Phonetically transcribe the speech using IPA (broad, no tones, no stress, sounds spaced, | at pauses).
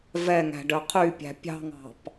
v ɛ ŋ æ̤ ɖ œ qʰ y pʲ æ̤ pʲ ɑ̤ ŋ ɑ̤ p